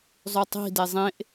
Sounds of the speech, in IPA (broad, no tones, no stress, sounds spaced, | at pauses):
zˤ ʉ tˤ i̤ d e zˤ ẽ ʔ